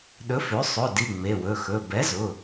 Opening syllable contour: rising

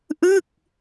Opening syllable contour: falling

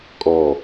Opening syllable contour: falling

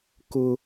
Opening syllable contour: high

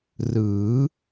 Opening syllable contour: rising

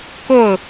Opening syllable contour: falling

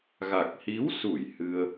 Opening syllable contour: low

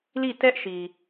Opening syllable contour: falling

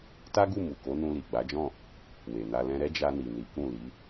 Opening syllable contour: high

